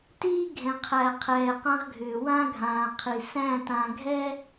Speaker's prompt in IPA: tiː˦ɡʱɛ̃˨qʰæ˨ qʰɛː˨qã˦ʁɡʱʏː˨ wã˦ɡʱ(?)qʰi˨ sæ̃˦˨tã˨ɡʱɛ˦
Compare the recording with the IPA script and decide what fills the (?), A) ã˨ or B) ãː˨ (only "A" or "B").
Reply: B